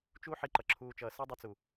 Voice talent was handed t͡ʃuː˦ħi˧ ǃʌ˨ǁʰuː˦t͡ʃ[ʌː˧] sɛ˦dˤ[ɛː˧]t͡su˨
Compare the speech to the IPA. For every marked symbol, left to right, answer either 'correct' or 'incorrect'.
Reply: correct, incorrect: ɛ˧

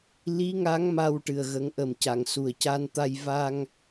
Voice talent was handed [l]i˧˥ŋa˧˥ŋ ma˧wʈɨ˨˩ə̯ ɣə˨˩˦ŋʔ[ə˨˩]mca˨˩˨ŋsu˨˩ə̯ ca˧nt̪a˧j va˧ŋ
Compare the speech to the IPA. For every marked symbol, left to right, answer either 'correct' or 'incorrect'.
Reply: correct, correct

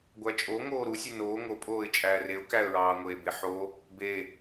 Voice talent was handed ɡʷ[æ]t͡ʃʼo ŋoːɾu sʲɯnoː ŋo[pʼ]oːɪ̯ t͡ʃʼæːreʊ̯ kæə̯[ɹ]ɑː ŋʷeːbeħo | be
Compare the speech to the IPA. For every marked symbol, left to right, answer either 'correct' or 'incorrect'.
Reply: correct, correct, correct

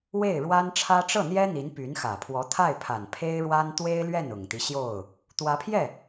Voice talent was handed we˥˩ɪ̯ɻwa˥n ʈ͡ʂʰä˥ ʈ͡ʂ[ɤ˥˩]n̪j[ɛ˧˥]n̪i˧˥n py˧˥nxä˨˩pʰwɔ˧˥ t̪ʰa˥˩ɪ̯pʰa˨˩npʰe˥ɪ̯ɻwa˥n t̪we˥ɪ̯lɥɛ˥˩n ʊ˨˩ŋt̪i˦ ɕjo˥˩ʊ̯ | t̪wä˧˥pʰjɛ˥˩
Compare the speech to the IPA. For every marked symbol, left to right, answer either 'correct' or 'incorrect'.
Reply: correct, incorrect: ɛ˥

